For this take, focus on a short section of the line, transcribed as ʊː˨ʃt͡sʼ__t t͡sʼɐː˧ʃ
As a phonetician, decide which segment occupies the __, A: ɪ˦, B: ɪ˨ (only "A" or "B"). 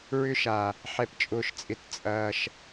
B